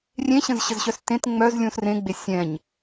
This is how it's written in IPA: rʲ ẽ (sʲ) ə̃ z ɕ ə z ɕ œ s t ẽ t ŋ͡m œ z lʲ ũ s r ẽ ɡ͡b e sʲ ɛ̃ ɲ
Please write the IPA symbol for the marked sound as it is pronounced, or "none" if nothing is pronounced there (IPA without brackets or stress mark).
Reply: ɕ